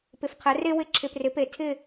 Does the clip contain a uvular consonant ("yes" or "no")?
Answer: yes